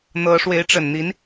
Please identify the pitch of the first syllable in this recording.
rising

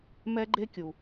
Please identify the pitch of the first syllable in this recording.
high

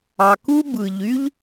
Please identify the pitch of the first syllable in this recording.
low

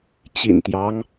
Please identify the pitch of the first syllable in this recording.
low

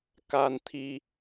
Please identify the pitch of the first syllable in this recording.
high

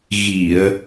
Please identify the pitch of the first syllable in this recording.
low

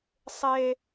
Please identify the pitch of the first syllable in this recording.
high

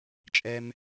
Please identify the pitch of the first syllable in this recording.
high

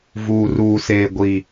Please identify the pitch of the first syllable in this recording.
low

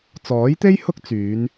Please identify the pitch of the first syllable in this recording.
rising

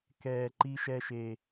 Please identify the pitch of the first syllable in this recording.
low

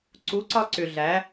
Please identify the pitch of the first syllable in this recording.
rising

